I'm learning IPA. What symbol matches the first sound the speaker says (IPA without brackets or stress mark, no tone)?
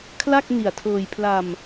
kʰ